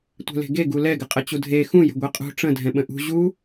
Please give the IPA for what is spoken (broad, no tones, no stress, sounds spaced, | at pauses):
tʷ ɛ̤ l e̤ ɡ e ɡ u l ɛ ɡ ɘ qʼ ə t͡ɕ u dʱ e x ũ j ə̤ ɡʷ e qʼ ṳ ʈ͡ʂ ə̃ dʱ ɛ̃ ɓ ə̃ ʔ ṳ ʑ u